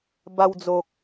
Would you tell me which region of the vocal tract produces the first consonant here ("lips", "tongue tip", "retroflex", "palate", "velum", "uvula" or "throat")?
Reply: lips